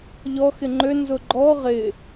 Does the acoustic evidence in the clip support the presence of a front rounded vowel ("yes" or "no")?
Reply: yes